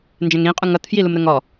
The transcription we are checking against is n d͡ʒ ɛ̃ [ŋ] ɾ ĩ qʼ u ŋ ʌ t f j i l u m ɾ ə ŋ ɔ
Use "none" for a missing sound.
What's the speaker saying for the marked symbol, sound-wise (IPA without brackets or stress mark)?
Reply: ŋ